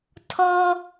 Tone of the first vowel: high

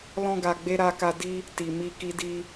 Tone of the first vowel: high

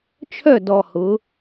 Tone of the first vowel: falling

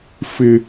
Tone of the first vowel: high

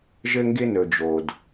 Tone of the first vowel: high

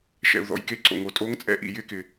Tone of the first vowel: low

